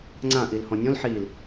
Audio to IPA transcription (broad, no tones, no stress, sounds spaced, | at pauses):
ŋ͡ǀ ã ʔ i l h ɔ̃ nʲ ɔ̃ l ħ iː l